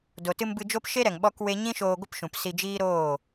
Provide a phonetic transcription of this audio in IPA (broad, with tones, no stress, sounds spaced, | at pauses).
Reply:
d o˨ t ɨ˧ m b ɨ˧ d͡ʒ o˦ p ʃ e˦ ɾ ɛ˨ ŋ ɓ ɔ˦ k w e˦ ɲ ĩ˦ ʃ oː˧ ɡʷ ə˦ p ʃ ũ˨ p s i˧ d͡ʒ iː˦ ɾ oː˦˨